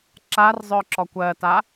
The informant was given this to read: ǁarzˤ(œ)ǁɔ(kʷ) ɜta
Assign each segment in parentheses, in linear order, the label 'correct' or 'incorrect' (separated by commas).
correct, correct